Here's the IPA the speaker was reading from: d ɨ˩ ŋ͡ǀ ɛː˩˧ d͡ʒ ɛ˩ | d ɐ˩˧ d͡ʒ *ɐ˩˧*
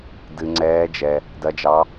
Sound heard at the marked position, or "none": ɑ˩˧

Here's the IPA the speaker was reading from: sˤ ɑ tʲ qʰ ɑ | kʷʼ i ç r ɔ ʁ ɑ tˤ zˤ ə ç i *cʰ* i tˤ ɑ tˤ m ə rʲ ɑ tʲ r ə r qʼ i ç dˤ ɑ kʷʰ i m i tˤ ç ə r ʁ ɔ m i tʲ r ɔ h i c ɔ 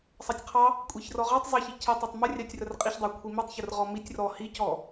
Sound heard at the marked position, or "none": cʰ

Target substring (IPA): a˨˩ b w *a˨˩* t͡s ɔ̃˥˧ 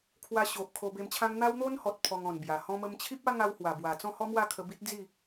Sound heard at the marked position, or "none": a˨˩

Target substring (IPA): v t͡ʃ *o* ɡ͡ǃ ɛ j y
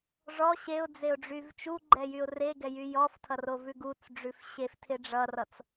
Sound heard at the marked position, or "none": u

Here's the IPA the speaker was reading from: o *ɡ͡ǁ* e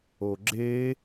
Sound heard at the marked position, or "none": ɡ͡ǁ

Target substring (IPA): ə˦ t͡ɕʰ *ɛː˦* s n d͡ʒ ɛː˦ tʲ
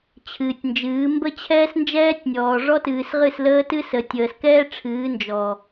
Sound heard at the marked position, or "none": ɛː˦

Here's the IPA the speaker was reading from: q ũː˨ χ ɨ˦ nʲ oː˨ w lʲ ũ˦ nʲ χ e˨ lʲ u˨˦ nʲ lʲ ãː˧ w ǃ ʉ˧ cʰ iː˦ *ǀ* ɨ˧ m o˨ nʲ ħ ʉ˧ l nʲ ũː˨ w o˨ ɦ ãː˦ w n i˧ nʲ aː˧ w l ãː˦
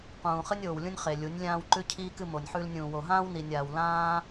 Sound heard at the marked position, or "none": k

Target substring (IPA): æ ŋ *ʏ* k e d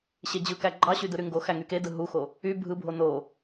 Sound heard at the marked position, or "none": y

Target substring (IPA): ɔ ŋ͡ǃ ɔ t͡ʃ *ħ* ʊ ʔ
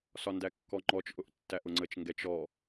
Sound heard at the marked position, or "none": ʔ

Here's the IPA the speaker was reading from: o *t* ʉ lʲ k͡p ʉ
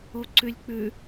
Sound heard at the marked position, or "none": ǀ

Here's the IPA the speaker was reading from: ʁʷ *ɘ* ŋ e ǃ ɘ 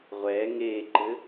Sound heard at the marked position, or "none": ɛ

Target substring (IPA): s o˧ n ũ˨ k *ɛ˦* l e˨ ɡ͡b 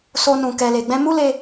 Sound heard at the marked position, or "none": ɛ˨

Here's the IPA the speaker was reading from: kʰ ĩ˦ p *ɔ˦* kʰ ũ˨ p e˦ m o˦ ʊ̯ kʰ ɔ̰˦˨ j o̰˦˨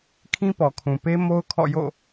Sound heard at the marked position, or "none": ɔ˨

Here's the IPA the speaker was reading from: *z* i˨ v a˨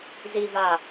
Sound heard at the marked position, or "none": z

